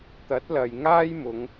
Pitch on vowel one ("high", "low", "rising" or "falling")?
rising